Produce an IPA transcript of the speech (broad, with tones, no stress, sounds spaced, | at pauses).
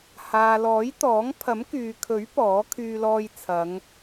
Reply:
h aː˨ l ɔː˨˥ j t̪ ɔː˨˥ ŋ pʰ ɐ˨˥ m k yː˨ kʰ ɵ˨˥ ɥ p ɔː˨˥ kʰ yː˧ l ɔː˧ j t͡sʰ ɐ˨˧ ŋ